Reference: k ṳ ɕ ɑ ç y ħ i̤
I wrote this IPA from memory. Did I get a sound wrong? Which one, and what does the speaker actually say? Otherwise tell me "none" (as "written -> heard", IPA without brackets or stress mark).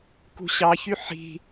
none